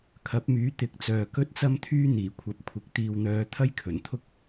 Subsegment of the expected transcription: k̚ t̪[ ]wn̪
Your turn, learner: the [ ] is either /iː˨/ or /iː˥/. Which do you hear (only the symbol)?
iː˨